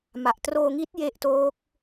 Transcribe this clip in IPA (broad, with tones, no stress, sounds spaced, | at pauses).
m a˨˩ ʔ t r oː˧ ŋ i˦˥ t̚ j e˦˥ ʔ t oː˦˥ k̚